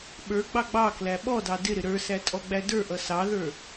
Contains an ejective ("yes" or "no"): yes